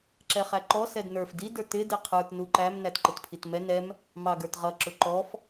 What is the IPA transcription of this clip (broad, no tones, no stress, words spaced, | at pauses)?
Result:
ǁɛχæǃɔ sɛdnə˞f di də˞tɪ dɪqʰə˞t nuǃæm nætǃɪtpʰitmɛ nɛm | mɑɡə˞tʁʌ ǁʊǃɔf